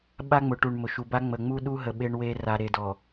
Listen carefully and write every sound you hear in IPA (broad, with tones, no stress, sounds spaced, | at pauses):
ɓ a˦ ŋ͡m ʊ˨ ʈ u˨ ɳ m ʊ˨ ʃ u˨ b a˦ ŋ͡m ə˨ ŋ͡m u˦ ɗ u˦ ɦ ə˨ ɓ e˦ ɳ w e˦ r a˨ ɾ e˨ d ɔ˨